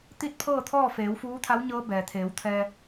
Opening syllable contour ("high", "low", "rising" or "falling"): falling